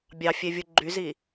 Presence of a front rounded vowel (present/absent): present